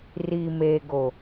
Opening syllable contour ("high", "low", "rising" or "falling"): low